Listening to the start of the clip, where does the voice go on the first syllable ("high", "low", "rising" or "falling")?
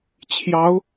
rising